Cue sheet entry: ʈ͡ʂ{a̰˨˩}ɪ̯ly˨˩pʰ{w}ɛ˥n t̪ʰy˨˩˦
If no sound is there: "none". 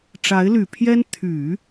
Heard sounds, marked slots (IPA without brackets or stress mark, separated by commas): a˧˥, j